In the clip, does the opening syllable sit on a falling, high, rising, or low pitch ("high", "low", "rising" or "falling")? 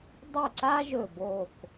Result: falling